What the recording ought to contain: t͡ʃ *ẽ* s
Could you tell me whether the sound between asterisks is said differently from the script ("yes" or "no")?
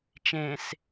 no